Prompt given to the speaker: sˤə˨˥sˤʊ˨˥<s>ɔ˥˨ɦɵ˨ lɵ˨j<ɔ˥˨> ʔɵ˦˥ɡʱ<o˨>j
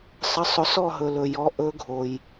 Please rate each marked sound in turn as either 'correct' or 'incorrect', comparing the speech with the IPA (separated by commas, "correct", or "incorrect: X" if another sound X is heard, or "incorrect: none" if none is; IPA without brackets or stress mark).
correct, incorrect: ɔ˨˥, correct